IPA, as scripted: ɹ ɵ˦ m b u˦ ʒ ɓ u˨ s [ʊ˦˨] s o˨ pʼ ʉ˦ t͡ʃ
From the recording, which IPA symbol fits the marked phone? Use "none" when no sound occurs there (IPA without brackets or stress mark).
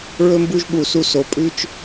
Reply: u˦˨